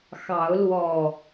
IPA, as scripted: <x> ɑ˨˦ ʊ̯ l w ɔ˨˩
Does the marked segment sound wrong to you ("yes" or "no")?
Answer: no